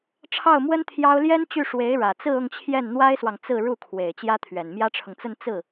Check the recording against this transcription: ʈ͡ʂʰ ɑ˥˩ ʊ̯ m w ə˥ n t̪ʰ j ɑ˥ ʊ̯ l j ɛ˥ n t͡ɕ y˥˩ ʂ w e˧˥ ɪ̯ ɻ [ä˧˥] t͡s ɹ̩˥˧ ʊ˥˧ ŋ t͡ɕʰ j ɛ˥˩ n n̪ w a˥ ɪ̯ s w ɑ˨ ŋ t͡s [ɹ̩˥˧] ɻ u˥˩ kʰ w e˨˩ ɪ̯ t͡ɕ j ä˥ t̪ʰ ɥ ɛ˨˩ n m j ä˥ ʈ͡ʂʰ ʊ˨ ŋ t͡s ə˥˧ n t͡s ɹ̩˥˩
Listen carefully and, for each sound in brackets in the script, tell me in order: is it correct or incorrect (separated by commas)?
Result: incorrect, correct